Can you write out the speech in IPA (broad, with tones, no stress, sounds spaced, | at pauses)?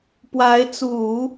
p w a˧˥ ɪ̯ t͡s u˨˩˦